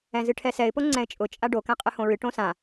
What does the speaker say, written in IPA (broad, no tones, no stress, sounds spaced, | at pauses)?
ɛ̃ z ɨ ʈʰ ɛ s ɛ ɪ̯ p o ŋ͡ǀ ɛ̃ ɪ̯ t͡ʃʼ ʊ t͡ʃʼ a ɖ o k ɛ̃ qʼ ɨ h õ ɹ ɨ ʈ õ s ã